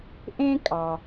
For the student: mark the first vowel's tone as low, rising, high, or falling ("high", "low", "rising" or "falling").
high